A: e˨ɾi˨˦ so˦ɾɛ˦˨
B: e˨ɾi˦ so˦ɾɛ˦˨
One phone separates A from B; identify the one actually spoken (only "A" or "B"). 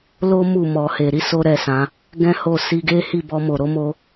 A